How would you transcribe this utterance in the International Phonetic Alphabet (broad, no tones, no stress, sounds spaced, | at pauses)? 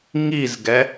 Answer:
ŋ i z ɡ ɛ